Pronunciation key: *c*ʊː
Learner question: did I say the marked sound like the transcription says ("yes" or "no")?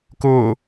no